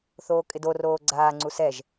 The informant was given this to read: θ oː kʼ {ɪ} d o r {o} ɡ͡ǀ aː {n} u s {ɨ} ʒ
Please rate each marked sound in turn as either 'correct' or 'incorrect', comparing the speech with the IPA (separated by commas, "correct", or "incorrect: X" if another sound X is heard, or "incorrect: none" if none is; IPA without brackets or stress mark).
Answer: correct, incorrect: oː, incorrect: ŋ͡ǀ, incorrect: ɛ